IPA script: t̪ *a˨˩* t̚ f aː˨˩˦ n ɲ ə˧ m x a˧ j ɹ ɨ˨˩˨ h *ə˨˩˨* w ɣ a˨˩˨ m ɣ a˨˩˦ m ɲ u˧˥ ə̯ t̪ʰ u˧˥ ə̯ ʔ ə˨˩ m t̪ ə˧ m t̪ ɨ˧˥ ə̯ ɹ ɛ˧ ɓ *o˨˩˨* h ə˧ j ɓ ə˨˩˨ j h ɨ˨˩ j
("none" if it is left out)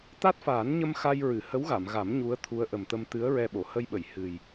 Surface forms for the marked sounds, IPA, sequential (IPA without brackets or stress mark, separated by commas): a˦˥, ə˧˥, o˨˩˨